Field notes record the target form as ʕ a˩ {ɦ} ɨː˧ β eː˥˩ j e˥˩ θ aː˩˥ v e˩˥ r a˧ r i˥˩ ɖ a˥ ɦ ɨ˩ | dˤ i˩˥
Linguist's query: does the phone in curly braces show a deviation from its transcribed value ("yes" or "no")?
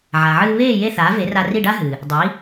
yes